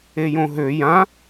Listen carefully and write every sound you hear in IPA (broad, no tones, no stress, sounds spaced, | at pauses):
e j õ ɦ ø j ã